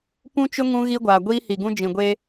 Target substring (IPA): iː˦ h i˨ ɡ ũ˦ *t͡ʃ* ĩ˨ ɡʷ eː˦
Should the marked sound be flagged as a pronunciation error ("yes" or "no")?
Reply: yes